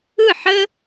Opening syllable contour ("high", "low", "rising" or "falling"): falling